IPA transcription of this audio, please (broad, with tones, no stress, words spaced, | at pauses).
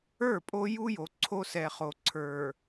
ə˞˦˨pʼo˦ju˦jo˨ ǀʰo˦sɛ˨χo˨ ǀʰə˞˨